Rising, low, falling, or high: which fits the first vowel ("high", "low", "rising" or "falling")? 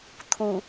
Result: low